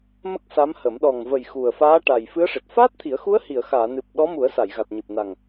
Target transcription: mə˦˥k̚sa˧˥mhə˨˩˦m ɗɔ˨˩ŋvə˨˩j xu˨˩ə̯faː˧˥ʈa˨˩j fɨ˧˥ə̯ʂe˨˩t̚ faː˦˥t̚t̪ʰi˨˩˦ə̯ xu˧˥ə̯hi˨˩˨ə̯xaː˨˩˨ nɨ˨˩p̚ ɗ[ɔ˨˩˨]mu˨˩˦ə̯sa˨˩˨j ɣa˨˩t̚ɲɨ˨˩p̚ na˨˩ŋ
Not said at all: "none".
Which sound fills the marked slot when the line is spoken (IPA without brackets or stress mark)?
ɔ˧˥